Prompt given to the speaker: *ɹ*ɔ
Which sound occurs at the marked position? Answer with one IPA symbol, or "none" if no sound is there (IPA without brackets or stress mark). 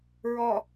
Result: ɹ